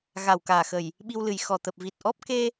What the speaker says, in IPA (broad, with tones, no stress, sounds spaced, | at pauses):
ɣ a˨˩ w k aː˨˩ x ə˨˩ j | ɓ i˧ w l ɨ˨˩ j x ɔ˨˩ t̪ ə˨˩ p̚ v i˨˩ t̚ ʔ ɔ˦˥ p̚ k e˧